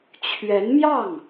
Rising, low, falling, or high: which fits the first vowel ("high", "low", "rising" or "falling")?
rising